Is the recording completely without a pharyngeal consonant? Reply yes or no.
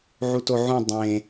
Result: no